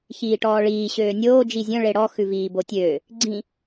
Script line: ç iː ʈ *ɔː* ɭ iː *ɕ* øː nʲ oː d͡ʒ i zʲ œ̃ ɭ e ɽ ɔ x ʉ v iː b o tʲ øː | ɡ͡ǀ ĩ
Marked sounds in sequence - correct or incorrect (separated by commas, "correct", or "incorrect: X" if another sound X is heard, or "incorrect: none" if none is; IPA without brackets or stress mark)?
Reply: correct, correct